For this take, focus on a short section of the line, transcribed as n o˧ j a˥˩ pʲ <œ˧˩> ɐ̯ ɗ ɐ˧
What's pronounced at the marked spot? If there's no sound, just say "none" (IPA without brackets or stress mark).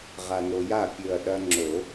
ɵ˧˩